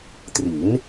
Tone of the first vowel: rising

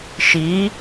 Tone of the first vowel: rising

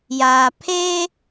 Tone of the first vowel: low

